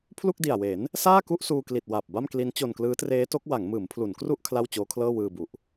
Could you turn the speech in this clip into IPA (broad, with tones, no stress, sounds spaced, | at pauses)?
pʰ l u˥˩ k̚ d i˨˩ a̯ w e˩˦ n | s aː˥˩ k u˥˩ ʔ s uː˧ k l i˨˩ t̚ w a˨˩ p̚ b a˥˩ m k l i˦˥ n t͡ɕ o˧ n k l ɯː˦˥ t r eː˦˥ t o˦˥ k̚ w a˩˦ ŋ m ɯː˩˦ m pʰ l u˩˦ n k r u˥˩ ʔ kʰ l a˥˩ w t͡ɕ oː˦˥ kʰ l ɤː˥˩ w ɯː˧ b u˨˩ ʔ